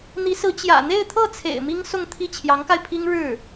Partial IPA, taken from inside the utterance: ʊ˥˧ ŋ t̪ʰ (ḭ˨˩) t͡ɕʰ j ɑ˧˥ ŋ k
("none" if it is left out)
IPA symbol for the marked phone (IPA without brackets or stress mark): i˥˩